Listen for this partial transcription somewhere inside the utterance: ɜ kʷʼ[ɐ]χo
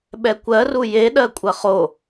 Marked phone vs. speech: correct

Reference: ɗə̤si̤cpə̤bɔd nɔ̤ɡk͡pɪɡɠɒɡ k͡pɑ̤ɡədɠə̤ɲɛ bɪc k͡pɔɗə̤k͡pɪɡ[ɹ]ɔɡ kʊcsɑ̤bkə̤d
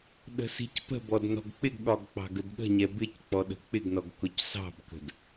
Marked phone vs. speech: incorrect: n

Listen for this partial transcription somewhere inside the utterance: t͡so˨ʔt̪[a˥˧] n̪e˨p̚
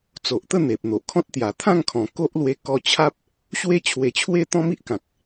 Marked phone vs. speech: incorrect: ə˥˧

